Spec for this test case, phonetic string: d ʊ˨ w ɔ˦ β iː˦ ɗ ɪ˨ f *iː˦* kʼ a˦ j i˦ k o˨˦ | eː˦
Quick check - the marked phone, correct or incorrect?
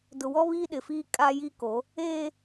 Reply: correct